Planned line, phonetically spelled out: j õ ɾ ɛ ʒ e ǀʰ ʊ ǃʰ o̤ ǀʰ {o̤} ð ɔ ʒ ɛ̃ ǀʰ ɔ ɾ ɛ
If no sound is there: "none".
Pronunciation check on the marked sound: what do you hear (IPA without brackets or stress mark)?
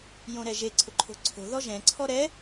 o̤